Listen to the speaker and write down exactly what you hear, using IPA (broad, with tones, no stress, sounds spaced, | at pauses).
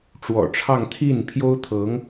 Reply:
ʈ͡ʂ w ɔ̰˨˩ ʈ͡ʂʰ ɑ˥˧ ŋ t̪ʰ i˥˩ n pʰ j o˥ ʊ̯ t̪ʰ ɤ˧˥ ŋ